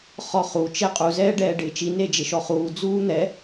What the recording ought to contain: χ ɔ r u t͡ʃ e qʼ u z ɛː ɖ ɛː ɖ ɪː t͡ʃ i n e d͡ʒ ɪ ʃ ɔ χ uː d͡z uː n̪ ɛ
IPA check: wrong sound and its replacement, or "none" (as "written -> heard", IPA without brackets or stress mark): r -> χ